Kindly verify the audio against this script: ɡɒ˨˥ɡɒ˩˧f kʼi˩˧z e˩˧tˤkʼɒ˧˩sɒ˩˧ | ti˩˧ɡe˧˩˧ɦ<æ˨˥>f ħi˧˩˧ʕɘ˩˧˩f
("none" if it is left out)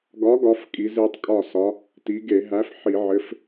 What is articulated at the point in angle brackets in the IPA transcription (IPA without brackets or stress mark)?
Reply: æ˨˥